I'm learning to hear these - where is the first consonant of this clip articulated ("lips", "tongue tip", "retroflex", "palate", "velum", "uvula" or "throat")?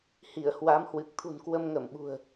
throat